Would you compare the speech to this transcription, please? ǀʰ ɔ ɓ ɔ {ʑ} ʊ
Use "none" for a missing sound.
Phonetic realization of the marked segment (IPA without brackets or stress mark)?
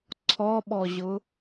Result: ʑ